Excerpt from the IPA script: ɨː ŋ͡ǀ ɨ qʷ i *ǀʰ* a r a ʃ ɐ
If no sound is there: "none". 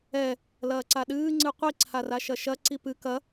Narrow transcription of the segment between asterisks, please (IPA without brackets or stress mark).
ǀʰ